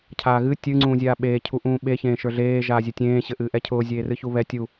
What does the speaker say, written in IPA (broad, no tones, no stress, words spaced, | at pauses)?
cʰaːɣɨ tʲɨ ŋ͡ǀũːzʲaːɓeː cʰuʔũːɓe çẽːʃə˞ɮeː ʒaːzʲɨtʲẽː ɕɘʔɨːʔɛcʰʊː zʲeːrɨçuβɛ tʲu